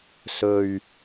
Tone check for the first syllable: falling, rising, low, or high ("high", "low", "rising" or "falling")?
low